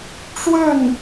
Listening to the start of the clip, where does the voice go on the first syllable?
falling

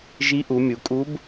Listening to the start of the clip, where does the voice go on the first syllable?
rising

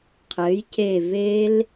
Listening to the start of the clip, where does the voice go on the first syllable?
rising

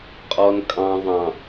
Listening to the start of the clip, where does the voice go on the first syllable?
low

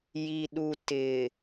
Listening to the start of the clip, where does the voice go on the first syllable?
low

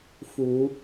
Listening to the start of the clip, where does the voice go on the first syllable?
low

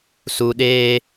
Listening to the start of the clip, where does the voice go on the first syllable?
low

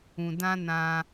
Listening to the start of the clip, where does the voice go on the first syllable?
low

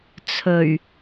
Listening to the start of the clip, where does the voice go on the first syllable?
low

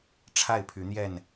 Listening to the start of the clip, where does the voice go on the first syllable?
falling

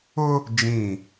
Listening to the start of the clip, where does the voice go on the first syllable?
high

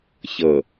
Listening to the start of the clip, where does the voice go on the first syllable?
low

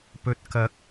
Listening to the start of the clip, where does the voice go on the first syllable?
low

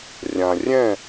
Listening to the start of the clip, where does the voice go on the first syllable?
low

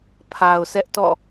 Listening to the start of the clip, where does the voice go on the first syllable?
low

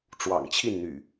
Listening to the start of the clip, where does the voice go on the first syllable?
low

